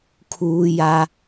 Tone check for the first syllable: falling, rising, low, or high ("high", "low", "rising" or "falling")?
high